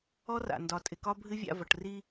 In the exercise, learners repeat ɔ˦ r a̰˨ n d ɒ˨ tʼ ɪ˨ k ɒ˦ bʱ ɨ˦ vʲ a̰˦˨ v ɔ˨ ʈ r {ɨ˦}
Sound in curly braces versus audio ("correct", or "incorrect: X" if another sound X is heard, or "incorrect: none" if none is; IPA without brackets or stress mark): incorrect: i˦